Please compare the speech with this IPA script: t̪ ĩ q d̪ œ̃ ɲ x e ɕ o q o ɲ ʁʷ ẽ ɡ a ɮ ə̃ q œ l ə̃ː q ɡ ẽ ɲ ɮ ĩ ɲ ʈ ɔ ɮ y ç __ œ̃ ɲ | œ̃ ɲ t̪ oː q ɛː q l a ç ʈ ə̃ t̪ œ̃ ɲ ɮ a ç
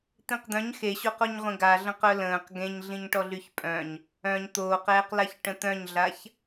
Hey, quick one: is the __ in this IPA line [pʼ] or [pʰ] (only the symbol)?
pʼ